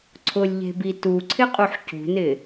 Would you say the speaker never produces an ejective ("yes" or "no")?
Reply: no